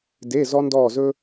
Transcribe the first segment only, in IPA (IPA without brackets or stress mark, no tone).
d